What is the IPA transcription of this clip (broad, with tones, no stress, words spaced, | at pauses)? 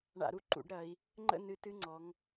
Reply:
ɳa̰˧˩˧ɾu˧ ǃṵ˧˩˧ɖɾɐ˩˧i̯ | ŋ͡ǃə̰˥˩nɨ˧˩˧t ɨ˥˧ŋ͡ǀɔ˩˧ŋ